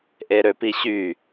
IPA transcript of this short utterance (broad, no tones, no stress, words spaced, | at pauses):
ʔeɾøpiɕy